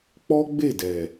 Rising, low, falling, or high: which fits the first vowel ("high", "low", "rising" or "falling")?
high